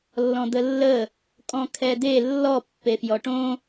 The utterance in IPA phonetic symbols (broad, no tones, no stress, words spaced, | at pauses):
lːɔ̃d̪əlːə | kʼɔ̃kʰɛd̪e lːɔ pːefjɔʈõ